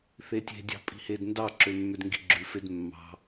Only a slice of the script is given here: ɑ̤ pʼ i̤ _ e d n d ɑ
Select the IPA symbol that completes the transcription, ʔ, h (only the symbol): h